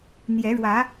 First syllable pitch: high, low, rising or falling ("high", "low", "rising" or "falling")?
rising